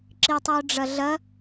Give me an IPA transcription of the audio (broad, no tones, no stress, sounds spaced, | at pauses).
ǁ i tˤ ɨ ʊ̯ ɖ͡ʐ ɐ ɮ ɐ